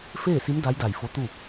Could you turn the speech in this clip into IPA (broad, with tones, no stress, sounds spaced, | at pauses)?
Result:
f eː˥˨ s i˧˥ m d a˧˥ j d a˧˩ j f o˧˥ t̪ u˥˨